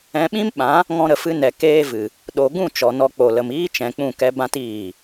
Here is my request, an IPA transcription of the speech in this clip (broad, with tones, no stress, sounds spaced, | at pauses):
ɛ̃˧ ɓ ĩ˦ m ɓ ã˨˦ | ŋ ɔ̃˧ ɾ ə˨ f ɨ˧ n ɛ˨ k eː˦ v ɨ˨ | ɗ o˨ ɡ ũ˦˨ t͡ʃ ɔ˨ n ɔ˧ k͡p o˨ l ə˨ m iː˦ t͡ʃ ɛ̃˨ k͡p ũ˦˨ k ɛ˦ b ã˧ t iː˦˨